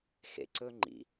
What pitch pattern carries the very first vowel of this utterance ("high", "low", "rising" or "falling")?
low